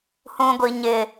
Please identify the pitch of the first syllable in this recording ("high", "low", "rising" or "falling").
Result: low